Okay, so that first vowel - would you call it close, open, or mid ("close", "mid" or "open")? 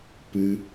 close